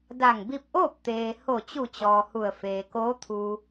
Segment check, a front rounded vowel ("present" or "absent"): absent